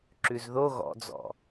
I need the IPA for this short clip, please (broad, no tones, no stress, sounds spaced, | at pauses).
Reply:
ǁ ʉ z ð o ɣ ɔ̰ d͡z ɔ̰